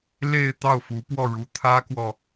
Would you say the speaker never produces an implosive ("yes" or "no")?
yes